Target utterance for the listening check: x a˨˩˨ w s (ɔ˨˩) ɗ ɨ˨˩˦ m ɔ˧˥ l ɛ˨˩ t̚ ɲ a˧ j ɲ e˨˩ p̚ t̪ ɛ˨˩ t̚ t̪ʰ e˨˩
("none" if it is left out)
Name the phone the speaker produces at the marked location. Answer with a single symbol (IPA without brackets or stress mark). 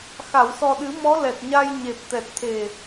ɔ˨˩